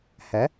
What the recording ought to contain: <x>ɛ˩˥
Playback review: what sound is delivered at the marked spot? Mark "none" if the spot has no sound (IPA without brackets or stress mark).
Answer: h